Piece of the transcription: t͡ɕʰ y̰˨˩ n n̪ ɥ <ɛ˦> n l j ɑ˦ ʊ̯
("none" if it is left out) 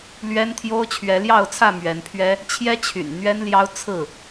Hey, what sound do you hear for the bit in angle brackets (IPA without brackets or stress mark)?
ɛ˦